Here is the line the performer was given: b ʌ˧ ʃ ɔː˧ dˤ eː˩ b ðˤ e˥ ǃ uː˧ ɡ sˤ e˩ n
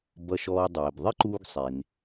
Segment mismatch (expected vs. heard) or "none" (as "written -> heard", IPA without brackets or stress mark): none